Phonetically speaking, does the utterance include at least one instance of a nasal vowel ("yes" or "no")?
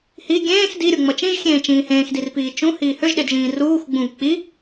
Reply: yes